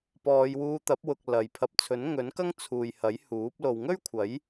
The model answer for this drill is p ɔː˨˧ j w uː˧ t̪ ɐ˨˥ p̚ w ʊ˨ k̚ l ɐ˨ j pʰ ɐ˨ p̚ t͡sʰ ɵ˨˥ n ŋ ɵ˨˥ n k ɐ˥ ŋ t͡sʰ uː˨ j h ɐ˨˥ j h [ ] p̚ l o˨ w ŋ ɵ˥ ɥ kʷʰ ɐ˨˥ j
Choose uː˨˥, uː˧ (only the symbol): uː˨˥